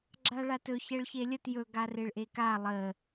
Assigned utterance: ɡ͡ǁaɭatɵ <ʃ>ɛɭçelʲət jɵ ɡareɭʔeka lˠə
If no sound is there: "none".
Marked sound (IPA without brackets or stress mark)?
ç